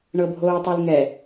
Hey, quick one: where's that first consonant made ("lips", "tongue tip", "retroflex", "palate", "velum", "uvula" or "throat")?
retroflex